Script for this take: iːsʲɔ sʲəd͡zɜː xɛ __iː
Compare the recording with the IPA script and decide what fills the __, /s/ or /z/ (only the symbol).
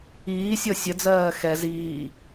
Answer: z